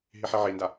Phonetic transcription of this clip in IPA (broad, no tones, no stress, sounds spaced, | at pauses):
ɦ i ħ i ʕ i n d a